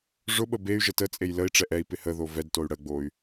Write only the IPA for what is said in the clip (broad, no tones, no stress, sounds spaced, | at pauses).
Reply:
ʐ ʊ ɓ ə b e y̯ ʒ ə t ə t͡sʼ e j l ə i̯ ʈ͡ʂ ɛ ʔ ɛ i̯ p ɪ h ə ð o v ɛ d t o y̯ ɽ ə ɡ͡b o y̯